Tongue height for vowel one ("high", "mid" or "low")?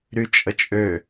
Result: high